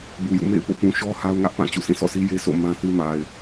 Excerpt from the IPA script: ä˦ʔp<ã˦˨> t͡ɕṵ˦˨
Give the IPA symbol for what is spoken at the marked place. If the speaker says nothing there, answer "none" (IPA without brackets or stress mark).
ã˦˨